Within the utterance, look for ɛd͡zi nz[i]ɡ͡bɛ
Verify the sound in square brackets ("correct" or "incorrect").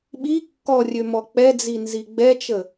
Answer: correct